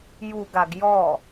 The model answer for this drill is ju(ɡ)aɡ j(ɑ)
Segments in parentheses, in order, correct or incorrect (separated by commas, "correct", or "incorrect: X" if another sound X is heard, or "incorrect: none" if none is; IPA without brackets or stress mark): correct, incorrect: ɔ